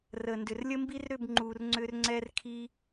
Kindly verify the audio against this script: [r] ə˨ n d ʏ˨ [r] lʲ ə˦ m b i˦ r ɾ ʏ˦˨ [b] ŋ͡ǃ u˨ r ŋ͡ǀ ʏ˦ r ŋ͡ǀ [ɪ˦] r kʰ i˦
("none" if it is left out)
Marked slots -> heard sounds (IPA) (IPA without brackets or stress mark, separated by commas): r, r, b, ɛ˦